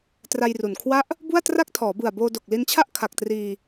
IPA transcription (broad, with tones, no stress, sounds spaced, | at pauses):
t r a˧ j r u˨˩ n kʰ w a˦˥ ʔ | b u˥˩ a̯ t r a˥˩ k̚ tʰ ɔː˩˦ b ɯ˨˩ a̯ b oː˧ d o˨˩ k̚ l i˧ n t͡ɕʰ a˥˩ ʔ kʰ a˨˩ k̚ t r iː˧